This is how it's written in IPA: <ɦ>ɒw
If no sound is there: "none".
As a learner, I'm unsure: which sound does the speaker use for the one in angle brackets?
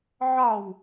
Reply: ʕ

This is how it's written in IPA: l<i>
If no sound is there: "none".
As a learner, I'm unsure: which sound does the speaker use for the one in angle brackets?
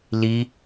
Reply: i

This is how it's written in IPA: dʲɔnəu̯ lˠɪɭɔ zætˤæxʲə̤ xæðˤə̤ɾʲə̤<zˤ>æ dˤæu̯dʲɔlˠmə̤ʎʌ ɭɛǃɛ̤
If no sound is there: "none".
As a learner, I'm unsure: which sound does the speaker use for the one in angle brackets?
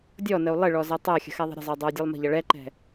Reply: zˤ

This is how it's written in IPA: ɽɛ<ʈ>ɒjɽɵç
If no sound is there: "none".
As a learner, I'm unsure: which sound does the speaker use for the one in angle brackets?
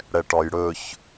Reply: ʈ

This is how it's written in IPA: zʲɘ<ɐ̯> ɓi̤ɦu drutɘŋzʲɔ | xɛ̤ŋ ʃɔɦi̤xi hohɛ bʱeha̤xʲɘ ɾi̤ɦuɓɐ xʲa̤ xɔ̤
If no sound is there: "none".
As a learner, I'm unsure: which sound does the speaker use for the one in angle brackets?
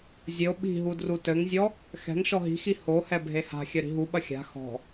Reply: o̯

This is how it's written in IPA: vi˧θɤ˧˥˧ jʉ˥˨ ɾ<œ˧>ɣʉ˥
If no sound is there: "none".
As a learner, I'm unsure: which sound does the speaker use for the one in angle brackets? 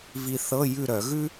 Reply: œ˧˩˧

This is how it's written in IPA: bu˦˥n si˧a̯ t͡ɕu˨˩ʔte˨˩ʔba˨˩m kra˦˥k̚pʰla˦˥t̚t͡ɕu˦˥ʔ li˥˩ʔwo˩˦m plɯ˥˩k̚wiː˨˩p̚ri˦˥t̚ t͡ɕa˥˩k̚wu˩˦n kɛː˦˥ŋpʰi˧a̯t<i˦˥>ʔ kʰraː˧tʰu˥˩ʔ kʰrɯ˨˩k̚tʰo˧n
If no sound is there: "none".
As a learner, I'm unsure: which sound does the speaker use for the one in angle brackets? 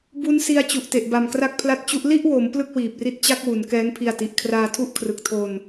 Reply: i˨˩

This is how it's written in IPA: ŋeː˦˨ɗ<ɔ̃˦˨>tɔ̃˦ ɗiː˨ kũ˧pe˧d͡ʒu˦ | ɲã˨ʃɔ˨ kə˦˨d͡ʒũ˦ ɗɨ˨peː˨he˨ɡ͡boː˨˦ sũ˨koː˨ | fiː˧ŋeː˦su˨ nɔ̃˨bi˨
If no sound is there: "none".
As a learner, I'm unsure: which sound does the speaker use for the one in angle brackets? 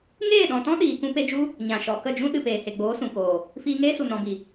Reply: ɔ̃˨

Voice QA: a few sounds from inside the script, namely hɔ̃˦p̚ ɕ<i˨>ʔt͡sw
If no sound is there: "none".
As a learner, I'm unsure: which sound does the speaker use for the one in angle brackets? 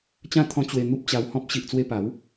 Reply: i˨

